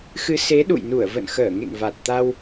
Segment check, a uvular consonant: absent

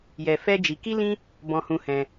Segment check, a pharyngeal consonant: absent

